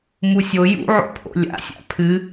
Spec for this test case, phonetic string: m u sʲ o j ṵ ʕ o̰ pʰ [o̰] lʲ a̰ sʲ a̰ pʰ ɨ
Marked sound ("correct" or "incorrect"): correct